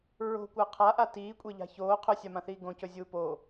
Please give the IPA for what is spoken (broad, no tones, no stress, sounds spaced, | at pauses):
ɹ o̤ kʷ a qʰ a ʔ a t iː kʷʼ e ʎ a̤ ç oː qʰ ɵ sʲ a m ã θ iː ɡ õ c ɵ zʲ uː p o